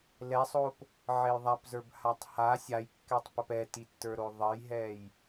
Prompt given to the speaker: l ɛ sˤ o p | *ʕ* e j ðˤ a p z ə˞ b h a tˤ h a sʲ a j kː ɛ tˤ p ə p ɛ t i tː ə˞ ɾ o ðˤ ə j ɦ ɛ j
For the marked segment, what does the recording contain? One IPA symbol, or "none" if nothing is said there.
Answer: ʕ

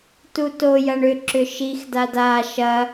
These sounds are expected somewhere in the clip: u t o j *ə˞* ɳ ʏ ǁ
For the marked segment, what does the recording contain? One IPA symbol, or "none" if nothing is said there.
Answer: ɐ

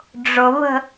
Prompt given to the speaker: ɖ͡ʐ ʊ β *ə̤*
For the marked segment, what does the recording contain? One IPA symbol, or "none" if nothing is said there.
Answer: ə̤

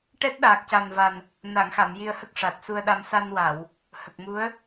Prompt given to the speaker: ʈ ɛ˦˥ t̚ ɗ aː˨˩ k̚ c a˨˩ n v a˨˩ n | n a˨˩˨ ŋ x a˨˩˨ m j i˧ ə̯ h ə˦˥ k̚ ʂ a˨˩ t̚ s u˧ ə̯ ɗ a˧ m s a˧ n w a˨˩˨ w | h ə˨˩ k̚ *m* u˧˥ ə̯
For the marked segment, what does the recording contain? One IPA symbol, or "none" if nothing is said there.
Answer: m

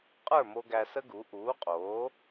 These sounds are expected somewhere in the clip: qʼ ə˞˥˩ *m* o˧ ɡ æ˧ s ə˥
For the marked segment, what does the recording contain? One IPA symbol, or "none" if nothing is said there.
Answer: m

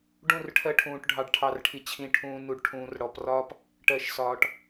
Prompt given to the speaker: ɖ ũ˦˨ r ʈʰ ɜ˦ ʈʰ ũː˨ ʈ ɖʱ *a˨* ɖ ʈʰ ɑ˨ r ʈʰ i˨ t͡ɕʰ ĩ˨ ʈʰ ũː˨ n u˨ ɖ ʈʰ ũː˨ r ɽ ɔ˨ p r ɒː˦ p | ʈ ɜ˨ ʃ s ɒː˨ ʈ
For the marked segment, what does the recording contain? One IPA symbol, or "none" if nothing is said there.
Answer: ɑ˨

